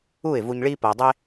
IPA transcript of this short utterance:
uː˦˨ɪ̯vu˧ɲɭiː˦ pɐː˧dˤe˦

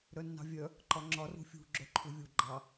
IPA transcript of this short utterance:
ɾœnːɑ̤vʲœ | ǃɒŋ͡ǁɒr ṳfʲṳ ɡ͡ǁœǃʰuvʲu ɡ͡ǃɑ

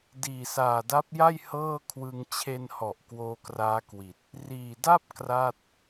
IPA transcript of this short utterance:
diː˨˩saː˨˩da˦˥p̚ja˥˩j hɤː˥˩kʰwɯ˧ŋ t͡ɕʰe˧nhɔ˨˩ʔ kwoː˧kraː˦˥kwi˨˩t̚ | riː˨˩da˥˩p̚ kra˥˩t̚

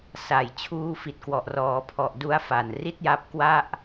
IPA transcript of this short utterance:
sa˨˩jt͡ɕʰuː˧fi˨˩t̚kwɔ˨˩ʔ rɔː˩˦pʰɔ˨˩ʔ du˦˥a̯fa˨˩n ri˥˩t̚ja˦˥p̚kwa˥˩ʔ

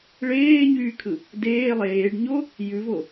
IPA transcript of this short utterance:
ɭeːɲyːkʰɯ | deː lˠeːɖɲo | jʉvo

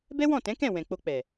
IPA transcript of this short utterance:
bɛ˦wɔ̃˦˨tɛ̃˨˦kɛ̃˦˨ wɛ̃˨k͡po˧k͡pɛ˨

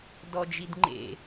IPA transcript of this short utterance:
dɔd͡ʒidŋ͡ǃḛ

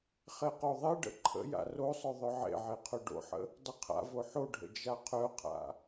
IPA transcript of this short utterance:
χeqoðˤeɖə̰ ǃʰə̰ ja̰rosˤœ ðˤœʕḛʕe qʰœɖo̰ħə̰ | dˤəqʰa̰vo ħoɖʱə̰ d͡ʒaqʰœqʰa̰

